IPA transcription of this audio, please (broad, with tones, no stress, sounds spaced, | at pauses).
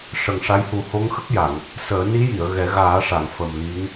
ʂ ə˨˩ ŋ ʂ a˧˥ j h u˨˩˦ h o˧˥ ŋ x ə˦˥ k̚ j a˨˩˨ ŋ | s əː˨˩˦ n i˧˥ j i˨˩˨ ə̯ ɣ ɛ˨˩˦ ɣ aː˨˩˦ ʂ a˨˩˨ ŋ f ə˨˩ m l i˧˥ ŋ